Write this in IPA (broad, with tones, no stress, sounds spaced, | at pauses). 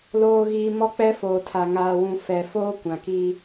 l oː˨ ɣ i˨ m ɔ˦ k͡p ɛ˦ f oː˨ tʰ a˨ ŋ aː˨ w ũ˨ f ɛ˨ f oː˦ kʷ ã˨ k i˦